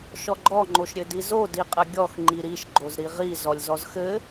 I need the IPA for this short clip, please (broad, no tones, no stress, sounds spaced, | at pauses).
ʃ ɔ ɡ͡ǃ ɔ ŋ͡ǃ o ʃ ɾʲ ɘ d i z o d i qʼ ɘ ɡʲ ɔ x ŋ͡ǃ i ɾ i ʃ ɡ͡ǃ o z ɾ i ʁ i z ɔ lʲ z ɔ z x ɘ